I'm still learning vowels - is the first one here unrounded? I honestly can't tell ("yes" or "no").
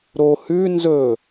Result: no